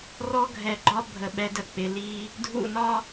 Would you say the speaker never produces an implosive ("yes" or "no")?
no